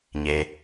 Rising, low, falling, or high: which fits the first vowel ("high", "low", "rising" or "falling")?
low